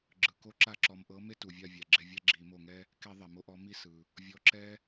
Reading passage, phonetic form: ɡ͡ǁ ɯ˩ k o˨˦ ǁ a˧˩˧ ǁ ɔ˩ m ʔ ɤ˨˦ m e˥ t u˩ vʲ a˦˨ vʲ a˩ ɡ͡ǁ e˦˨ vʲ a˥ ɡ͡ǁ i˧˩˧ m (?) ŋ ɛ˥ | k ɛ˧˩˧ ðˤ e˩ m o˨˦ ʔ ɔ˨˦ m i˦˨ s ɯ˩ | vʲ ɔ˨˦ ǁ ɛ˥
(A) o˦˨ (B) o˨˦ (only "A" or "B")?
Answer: A